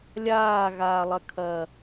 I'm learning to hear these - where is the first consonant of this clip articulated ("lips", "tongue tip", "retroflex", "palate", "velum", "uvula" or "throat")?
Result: tongue tip